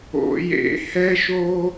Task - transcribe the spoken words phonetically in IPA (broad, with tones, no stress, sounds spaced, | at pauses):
o̰˨˩˦ j ḛ˨˩˦ h ɛ˦ ʃ o˦